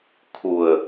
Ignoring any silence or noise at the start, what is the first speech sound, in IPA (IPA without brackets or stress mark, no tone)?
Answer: kʰ